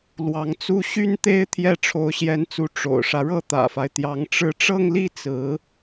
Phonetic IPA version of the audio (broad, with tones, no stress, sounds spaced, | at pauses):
l w ɑ˧˥ ŋ t͡s u˥ ɕ y˥ n t̪ e˥ ɪ̯ t̪ʰ j ɛ˥˩ ʈ͡ʂʰ o˧˥ ʊ̯ ɕ j ɛ˧˥ n t͡s u˧˥ ʈ͡ʂ o̰˨˩ ʊ̯ ʂ ä˦ ɻ ɤ˥˩ t̪ ä̰˨˩ f a˦ ɪ̯ t̪ j ɑ˧˥ ŋ ʈ͡ʂ ɻ̩˥˧ ʈ͡ʂ ɤ˥˧ ŋ l i˥˩ t͡s ɹ̩˧˥